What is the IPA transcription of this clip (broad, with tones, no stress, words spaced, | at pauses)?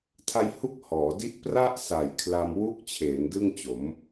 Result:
tʰa˧jhu˦˥k̚ hɔː˩˦di˦˥ʔpra˥˩ʔsa˨˩j kʰla˧m wu˦˥k̚t͡ɕʰeː˩˦n dɯ˥˩ŋt͡ɕo˩˦m